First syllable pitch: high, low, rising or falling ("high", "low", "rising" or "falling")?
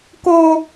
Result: high